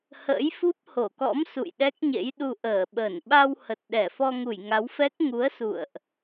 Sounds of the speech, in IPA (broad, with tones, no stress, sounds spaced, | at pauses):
h ə̰ː˧˥ j f u˦˥ p̚ h o˧˩ k ɔ̰˧˥ m s ṵ˧˨ j ɗ ɛ˦˥ k̚ ɲ ḛ˧˥ j ɗ u˧ ʔ əː˧˩ ɓ ə˧˩ n ɓ a˧ w h ə˨˩ t̚ ɗ ɛ˧˩ f ɔ˧ ŋ u˧˩ j ŋ a˨˦ w f ɛ˦˥ k̚ ŋ u˨˦ ə̯ s ṵ˧˨ ə̯ ʔ